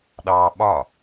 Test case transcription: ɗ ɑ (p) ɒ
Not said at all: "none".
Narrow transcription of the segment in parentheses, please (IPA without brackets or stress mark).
ɓ